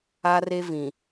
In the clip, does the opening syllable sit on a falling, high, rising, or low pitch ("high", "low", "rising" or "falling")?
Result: high